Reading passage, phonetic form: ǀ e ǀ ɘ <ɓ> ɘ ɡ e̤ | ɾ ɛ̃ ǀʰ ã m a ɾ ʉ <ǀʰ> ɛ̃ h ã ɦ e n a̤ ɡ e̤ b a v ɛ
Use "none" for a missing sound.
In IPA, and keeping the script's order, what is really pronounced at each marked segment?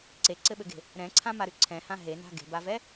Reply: ɓ, ǀʰ

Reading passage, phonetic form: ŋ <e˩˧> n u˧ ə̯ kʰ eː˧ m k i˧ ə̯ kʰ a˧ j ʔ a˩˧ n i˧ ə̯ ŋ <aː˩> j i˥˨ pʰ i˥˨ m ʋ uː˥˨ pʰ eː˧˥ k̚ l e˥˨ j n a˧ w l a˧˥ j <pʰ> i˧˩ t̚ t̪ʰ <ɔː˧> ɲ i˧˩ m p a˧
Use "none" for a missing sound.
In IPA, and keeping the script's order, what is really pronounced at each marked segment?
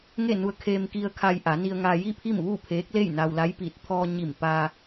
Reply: e˥˨, aː˧, p, ɔː˧

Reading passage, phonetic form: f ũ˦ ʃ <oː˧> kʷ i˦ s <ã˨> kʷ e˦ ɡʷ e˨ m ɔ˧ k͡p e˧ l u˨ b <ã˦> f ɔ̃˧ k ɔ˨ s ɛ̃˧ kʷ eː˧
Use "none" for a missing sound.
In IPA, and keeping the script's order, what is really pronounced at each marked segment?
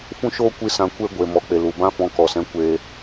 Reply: oː˦, ã˧, ã˦

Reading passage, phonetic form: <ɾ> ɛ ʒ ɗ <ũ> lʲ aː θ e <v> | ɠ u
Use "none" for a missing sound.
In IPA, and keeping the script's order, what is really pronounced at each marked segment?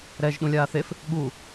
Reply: ɾ, ũ, f

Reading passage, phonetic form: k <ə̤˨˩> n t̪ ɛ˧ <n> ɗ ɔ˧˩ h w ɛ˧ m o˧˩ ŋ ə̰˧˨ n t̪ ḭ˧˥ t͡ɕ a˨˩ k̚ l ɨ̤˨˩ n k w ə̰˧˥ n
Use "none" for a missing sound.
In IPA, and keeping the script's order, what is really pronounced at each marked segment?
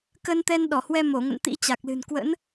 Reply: ə˧, n

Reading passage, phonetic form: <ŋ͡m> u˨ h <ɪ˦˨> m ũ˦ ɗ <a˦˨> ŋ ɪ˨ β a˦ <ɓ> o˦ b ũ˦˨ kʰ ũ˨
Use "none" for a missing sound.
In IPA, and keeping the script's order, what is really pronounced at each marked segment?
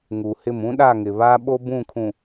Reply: ŋ, ɪ˦˨, a˦˨, ɓ

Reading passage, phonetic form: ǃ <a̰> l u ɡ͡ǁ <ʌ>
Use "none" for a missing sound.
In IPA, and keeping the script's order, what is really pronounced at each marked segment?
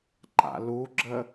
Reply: a̰, ə

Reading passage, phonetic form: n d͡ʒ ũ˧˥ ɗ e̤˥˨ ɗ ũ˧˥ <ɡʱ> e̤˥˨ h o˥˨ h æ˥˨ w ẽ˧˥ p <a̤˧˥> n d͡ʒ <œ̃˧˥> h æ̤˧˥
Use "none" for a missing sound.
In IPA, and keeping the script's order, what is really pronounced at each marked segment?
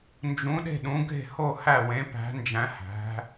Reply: ɡʱ, æ̤˧˥, æ̃˧˥

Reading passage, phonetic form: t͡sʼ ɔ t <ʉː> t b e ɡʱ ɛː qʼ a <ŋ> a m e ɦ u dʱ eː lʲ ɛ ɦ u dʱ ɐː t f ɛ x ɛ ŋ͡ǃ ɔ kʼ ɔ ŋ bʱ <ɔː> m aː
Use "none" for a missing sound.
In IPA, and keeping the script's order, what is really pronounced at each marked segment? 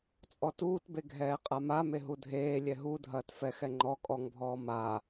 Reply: uː, m, ɔː

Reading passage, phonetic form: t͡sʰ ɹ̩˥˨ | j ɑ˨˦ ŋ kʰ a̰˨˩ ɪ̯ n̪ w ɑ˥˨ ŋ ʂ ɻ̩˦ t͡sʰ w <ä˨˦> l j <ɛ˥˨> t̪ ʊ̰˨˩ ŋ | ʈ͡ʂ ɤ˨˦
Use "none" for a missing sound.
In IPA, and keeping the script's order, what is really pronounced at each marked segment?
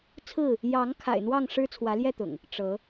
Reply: ä˨˦, ɛ˥˨

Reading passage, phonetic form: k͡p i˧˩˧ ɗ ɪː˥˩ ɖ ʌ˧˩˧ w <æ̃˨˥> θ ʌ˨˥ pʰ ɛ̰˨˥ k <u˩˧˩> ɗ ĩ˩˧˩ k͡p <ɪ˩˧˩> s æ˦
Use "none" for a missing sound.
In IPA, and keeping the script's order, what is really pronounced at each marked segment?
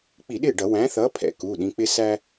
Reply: æ̃˨˥, u˩˧˩, ɪ˦

